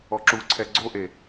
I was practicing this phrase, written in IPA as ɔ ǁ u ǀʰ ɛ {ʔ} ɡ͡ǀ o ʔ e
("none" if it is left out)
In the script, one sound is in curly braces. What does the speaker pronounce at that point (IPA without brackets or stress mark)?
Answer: none